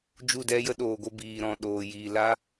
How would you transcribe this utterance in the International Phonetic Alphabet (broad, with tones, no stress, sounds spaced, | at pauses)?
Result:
d͡ʒ u˦˨ d ɛ˦ j ə˦ ɗ oː˨ ɡʷ ə˧ b iː˨ ɾ ɔ̃˨ ɗ oː˨ j iː˨ l a˦